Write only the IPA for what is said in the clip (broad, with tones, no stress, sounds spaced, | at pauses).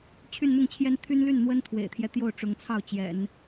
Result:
t͡ɕʰ y˥˧ n n̪ ʊ˥˩ ŋ t͡ɕʰ j ɛ˥ n t̪ʰ y˥ n l y˥˩ n n̪ w ə˥ n t̪ʰ w ḛ˨˩ ɪ̯ t̪ʰ j ɛ˦ t̪ j o˥˩ ʊ̯ ʈ͡ʂ ʊ˧˥ ŋ t͡sʰ ɑ˥˩ ʊ̯ t͡ɕ j ɛ̰˨˩˦ n